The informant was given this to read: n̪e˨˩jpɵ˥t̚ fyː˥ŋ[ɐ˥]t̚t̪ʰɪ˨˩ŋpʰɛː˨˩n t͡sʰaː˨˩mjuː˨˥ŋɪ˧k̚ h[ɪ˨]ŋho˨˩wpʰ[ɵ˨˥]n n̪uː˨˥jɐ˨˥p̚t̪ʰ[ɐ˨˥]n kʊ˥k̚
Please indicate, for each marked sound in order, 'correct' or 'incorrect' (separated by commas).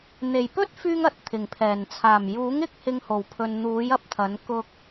incorrect, incorrect, incorrect, correct